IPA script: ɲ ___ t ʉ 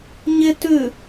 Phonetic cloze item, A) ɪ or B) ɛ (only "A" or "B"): A